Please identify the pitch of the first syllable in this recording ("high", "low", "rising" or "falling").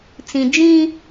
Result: low